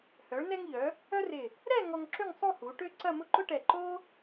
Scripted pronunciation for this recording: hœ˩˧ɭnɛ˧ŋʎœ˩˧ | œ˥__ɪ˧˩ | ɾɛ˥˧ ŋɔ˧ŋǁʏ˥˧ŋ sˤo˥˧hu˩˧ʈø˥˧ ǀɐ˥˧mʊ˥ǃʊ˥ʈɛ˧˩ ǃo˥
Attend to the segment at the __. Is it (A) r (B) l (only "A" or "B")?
A